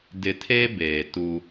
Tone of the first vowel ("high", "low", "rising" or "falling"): low